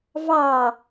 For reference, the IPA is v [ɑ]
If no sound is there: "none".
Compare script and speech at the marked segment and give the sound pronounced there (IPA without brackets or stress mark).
ɑ